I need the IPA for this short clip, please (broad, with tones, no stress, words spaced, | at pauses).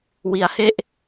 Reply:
wi˦˥a̯he˥˩ʔ